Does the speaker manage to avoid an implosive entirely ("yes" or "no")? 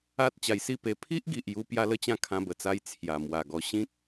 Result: yes